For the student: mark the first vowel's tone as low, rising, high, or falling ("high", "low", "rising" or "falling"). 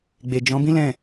low